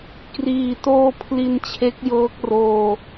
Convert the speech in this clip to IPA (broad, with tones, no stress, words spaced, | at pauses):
kriː˨˩toː˧ pʰli˧nt͡ɕʰe˦˥k̚jɤː˦˥k̚roː˧